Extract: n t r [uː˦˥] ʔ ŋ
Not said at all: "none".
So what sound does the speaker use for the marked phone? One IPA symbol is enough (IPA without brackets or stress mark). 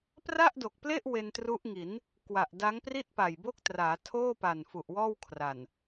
u˦˥